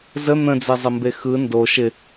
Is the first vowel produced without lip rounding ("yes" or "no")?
yes